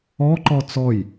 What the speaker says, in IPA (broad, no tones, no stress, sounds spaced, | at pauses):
ɔ ǃ ɔ t͡s ɔ j